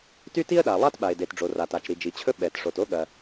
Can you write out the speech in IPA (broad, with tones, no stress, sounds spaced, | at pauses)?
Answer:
t y˥ t i˥ ə̯ ɗ a˩ lˠ a˥ t ɓ a˩ ɪ̯ d e˩ t ɖ͡ʐ o˩ r a˩ t a˩ t͡ʃ ɾ i˩ d͡ʒ i˩ t͡ɕʰ ɵ˥ ɓ ɛ˩ t ʂ o˩ t o˥ ɠ ɐ˩